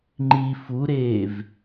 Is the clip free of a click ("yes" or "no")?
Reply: no